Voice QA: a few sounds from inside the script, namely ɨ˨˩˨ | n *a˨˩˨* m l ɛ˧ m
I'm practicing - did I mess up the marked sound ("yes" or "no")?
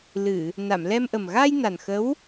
no